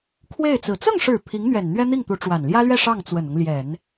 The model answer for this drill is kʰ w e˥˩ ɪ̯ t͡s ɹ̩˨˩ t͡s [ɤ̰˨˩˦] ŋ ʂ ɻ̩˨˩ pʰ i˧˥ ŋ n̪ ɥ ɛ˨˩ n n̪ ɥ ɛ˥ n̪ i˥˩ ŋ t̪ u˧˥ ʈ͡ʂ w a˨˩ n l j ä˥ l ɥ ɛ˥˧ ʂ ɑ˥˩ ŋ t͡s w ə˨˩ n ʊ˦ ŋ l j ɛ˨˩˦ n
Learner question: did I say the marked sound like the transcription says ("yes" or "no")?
no